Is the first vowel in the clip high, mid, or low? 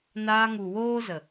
low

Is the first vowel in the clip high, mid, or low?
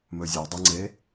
mid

